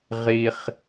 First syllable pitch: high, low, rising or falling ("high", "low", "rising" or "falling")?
low